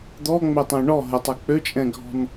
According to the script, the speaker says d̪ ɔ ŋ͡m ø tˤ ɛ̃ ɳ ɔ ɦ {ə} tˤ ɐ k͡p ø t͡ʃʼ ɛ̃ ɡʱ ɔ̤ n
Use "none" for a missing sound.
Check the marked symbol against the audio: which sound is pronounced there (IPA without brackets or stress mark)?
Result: ə